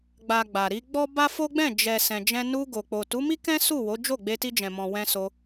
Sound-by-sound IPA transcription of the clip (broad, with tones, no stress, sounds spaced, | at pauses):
ɡ͡b a˨ ɡ͡b a˨ ɾ i˧ ɡ͡b ɔ˦ b a˦ f o˦ ɡ͡b ɛ̃˦˨ d͡ʒ ɛ˨ s ɛ̃˨ d͡ʒ ɛ̃˧ n u˧ ɡ o˨ k͡p o˨ t u˨˦ m i˦ k ɛ̃˦ s u˦˨ w o˨˦ d͡ʒ o˦˨ ɡ͡b e˧ t i˧ d͡ʒ ɛ̃˨ m ɔ̃˨ w ɛ̃˧ s o˧